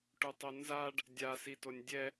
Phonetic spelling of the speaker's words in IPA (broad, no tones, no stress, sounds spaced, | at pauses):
ʈ u tˤ o n z a ɖ | dʲ a s i t o nʲ dʲ ɛ